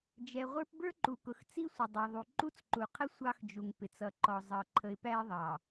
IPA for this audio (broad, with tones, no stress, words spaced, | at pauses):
d͡ʒɛ˨ʁʷə˞˦p bə˞˦ǃu˨kʊ˨x t͡si˦sʷə˨ dˤɑ˨ðˤu˨ ǃu˦t͡sǃu˨qʰə˦ sʷɑ˦x d͡ʒu˨ŋpɪ˨t͡sʌ˨ǃɔ˨ zˤʌ˨ ǃʰə˨ɪ̯pæ˦ɪ̯ðˤɑ˨